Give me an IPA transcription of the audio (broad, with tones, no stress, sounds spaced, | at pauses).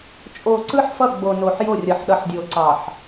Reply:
t͡ʃʼ o˨ ǀ ɯ˦ ħ f ʌ˦˨ ɡ͡b o˨ n o˨ ħ j o˦˨ rʲ ʌ˨ ħ ɗ ʌ˨ ħ dʲ o˨ ǀ ɑ˨ ħ